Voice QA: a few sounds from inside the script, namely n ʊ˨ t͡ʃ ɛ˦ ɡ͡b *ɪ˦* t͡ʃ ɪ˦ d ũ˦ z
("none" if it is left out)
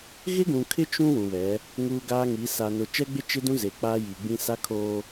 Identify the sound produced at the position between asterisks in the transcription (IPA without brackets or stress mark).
ɪ˦